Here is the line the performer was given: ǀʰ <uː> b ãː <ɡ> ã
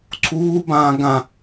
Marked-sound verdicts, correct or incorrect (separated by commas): correct, correct